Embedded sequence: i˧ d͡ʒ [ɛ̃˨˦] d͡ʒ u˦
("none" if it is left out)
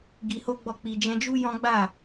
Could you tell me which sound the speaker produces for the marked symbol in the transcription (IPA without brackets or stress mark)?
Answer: ɛ̃˧